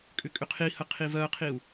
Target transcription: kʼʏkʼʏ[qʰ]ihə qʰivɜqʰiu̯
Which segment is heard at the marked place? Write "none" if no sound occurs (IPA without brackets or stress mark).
qʰ